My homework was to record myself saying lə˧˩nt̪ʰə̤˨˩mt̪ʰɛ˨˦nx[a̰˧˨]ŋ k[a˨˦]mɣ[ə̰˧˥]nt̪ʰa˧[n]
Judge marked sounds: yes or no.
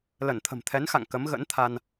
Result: yes, no, yes, yes

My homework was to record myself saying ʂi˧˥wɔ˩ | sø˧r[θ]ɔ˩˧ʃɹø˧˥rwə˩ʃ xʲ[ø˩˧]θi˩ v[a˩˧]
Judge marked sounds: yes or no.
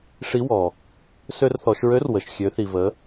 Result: yes, yes, no

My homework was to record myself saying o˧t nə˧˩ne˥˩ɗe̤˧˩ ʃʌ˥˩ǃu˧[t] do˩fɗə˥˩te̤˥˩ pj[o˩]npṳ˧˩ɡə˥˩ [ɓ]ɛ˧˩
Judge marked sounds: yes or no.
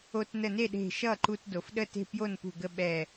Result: yes, no, yes

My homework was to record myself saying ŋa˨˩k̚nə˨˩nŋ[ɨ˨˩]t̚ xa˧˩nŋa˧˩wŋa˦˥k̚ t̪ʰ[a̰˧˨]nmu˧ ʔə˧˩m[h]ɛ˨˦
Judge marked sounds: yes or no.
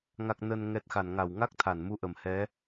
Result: no, no, yes

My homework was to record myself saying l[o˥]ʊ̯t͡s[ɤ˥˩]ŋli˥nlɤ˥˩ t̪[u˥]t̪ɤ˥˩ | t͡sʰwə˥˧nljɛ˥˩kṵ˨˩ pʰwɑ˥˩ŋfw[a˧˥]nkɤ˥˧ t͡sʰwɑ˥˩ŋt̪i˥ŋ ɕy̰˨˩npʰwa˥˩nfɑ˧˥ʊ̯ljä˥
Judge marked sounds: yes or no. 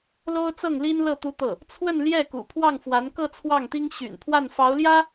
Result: yes, yes, yes, yes

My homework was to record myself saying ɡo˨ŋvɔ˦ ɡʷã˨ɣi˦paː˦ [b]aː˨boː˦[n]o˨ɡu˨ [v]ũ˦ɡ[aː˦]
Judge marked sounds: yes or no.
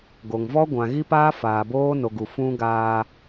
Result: no, yes, no, yes

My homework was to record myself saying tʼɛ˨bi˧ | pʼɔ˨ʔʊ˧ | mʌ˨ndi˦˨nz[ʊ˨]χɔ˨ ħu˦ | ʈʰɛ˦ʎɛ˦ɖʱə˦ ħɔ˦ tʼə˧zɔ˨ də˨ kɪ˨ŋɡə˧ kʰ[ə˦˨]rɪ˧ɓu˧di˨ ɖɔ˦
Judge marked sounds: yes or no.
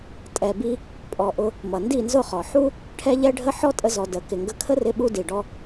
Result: no, no

